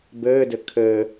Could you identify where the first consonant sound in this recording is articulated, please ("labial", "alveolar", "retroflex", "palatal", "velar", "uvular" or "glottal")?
labial